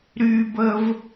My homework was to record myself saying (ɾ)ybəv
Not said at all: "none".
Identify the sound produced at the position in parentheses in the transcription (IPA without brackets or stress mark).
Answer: ɾ